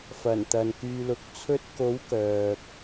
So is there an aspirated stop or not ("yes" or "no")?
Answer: yes